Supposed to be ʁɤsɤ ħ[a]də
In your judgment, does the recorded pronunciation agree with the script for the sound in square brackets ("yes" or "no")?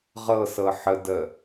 no